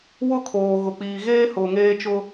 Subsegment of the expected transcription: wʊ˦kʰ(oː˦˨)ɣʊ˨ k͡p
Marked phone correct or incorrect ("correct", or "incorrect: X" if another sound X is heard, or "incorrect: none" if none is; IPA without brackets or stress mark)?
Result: incorrect: oː˨